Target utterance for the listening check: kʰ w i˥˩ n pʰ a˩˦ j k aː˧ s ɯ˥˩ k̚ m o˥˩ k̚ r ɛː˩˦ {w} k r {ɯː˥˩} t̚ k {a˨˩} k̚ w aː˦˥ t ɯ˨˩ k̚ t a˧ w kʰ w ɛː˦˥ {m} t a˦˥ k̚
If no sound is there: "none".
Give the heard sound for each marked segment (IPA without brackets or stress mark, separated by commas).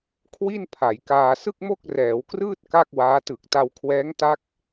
w, ɯː˥˩, a˥˩, ŋ